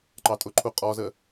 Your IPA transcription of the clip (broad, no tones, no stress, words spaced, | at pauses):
ǃɑtʼʊǃʰu qʼɔzə